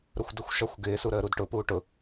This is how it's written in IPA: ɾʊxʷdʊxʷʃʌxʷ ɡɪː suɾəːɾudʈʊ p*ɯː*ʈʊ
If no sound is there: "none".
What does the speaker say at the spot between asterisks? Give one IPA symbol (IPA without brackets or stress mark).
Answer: uː